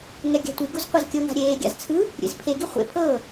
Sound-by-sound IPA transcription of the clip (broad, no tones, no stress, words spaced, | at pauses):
ŋɛɡʲa̤tʷiɡuz qʷazkʲɤŋa̤ ɾʲeːɡʲa̰z t͡sʰɯ | ɾʲḛzpʰeɡi χʷḛ pʰɤː